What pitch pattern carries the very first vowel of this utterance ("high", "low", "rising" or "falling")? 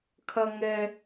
high